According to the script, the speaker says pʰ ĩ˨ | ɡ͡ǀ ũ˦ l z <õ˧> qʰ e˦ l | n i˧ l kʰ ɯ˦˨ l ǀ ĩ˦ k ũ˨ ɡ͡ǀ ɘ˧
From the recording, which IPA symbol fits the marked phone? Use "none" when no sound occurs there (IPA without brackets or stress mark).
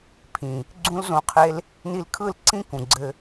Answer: õ˧